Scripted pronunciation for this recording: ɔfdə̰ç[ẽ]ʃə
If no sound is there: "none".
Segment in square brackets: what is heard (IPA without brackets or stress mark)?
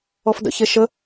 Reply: e